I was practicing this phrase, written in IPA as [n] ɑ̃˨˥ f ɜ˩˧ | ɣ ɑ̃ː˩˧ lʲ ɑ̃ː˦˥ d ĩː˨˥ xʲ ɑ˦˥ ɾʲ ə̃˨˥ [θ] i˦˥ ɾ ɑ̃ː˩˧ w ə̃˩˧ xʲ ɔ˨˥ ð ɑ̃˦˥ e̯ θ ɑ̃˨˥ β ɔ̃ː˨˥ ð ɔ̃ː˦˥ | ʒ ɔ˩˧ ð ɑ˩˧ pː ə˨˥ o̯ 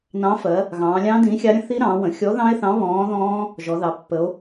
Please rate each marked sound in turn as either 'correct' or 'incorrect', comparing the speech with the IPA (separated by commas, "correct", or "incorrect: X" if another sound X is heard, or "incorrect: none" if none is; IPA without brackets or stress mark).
correct, correct